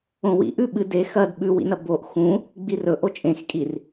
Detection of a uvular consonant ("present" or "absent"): absent